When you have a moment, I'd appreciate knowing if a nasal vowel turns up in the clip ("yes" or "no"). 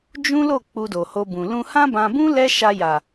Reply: yes